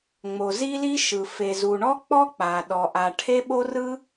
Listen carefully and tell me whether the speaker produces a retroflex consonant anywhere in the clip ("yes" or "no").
yes